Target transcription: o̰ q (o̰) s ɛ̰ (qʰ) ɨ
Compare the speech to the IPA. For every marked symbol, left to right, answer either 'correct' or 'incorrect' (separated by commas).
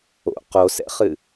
incorrect, incorrect